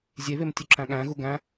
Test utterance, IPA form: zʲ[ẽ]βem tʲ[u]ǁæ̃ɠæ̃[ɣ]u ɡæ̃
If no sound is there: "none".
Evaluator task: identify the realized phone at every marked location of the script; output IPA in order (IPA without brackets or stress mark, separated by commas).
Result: e, u, ɣ